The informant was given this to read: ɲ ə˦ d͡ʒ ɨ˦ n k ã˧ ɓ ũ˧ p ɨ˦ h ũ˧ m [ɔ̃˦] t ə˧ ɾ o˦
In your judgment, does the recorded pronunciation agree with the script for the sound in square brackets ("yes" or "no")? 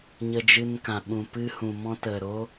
yes